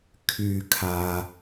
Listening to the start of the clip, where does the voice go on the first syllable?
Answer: low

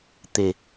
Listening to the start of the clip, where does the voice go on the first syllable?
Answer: low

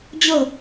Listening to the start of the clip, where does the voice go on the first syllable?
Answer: falling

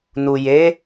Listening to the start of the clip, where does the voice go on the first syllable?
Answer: low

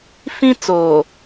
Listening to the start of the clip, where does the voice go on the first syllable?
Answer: high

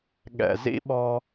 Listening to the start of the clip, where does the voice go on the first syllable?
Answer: low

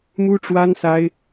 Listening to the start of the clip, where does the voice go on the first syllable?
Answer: high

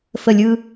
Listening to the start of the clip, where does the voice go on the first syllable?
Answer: falling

